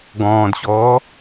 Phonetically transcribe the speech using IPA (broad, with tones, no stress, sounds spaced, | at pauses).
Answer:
ɡ ɔ̃ː˨ d ɕ ɔː˨˦